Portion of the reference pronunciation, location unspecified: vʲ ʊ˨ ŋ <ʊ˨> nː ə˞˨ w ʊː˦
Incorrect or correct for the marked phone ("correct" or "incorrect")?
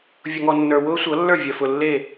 incorrect